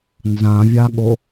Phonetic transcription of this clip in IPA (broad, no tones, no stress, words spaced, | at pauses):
nzãvʲaɠo